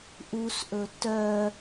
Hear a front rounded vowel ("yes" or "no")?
yes